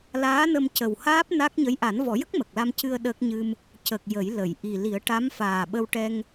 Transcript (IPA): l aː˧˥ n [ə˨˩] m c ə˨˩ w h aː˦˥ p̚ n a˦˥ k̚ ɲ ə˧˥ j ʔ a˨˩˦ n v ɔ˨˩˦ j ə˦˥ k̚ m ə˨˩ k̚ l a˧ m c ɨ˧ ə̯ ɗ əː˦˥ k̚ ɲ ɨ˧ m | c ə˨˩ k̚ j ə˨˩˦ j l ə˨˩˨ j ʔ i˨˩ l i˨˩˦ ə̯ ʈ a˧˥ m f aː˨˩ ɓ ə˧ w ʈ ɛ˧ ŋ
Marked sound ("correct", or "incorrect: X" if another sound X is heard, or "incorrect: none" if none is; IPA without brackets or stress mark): incorrect: ə˧